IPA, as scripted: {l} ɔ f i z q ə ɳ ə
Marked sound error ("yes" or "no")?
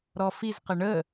yes